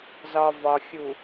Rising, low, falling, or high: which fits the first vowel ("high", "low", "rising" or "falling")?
low